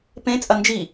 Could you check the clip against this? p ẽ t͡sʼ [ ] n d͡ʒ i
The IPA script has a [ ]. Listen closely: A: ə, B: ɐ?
B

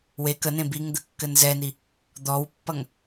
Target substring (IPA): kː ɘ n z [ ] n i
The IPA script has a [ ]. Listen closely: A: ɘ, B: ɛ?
B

